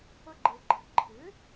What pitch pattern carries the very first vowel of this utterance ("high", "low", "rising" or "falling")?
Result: high